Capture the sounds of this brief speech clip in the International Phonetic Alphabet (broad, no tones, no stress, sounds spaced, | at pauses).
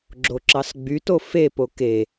ɡ͡ǁ o ǁ ɑ s ɡ͡b y t o f e p o k e